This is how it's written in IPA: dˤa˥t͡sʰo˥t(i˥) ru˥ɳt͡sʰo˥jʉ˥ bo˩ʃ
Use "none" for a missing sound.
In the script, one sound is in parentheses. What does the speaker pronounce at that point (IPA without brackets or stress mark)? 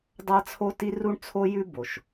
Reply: i˥